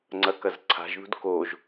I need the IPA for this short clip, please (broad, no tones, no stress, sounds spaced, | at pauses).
ŋ͡ǀ ɐ k ɐ z ǀʰ a̤ ʒ ð ṳ d k o ʒ